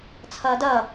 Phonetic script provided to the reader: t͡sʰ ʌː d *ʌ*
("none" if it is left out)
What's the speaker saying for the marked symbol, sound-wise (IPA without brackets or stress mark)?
ʌ